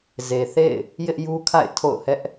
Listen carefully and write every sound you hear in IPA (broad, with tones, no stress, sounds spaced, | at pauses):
z e˨ θ ḛ˦˨ ɪ̯ | j ɪ˦ ʔ j u˦ kʰ a̰˦˨ ɪ̯ tʰ o̰˦˨ ʊ̯ h ɛ˦ ʔ